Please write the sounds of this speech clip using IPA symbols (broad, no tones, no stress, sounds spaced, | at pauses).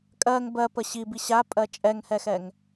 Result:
kʼ ɜ ŋ b ɜ p ə ɕ i b i ɕ a pʼ ɜ t͡ʃʼ ɛ ŋ h ɛ x ɛ ŋ